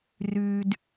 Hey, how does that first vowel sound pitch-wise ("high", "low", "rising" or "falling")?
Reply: high